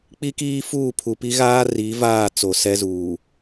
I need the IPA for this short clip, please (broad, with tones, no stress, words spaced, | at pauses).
k͡pi˦kiː˦fuː˦˨ pʰu˨pi˦ɣaː˦ ri˨˦ vaː˦˨ t͡so˨sɛ˦zuː˨